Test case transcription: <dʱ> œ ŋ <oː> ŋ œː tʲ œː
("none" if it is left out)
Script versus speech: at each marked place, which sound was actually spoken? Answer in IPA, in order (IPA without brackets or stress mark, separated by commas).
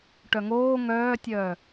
ʈ, oː